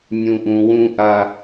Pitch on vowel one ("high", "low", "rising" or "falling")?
low